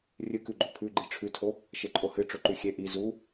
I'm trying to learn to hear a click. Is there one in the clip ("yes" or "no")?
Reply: yes